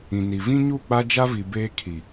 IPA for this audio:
ĩ˨ n i˨ v ĩ˦ ɲ u˦˨ k͡p a˦ d͡ʒ a˦ v i˨ b eː˦ kʰ i˨

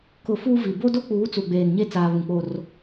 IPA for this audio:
k ʊ˨ f uː˦ v i˨ b o˦ d o˦ k͡p uː˨˦ t͡s u˨ ɡ͡b eː˨ n ɲ e˦ t͡s aː˨ β ũ˨ k͡p oː˦ r

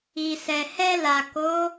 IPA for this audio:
i˨ s ɛ˨ h ɛ˧ l a˨ k o˨˦

